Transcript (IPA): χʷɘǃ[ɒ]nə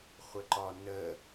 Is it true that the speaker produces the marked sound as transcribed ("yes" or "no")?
yes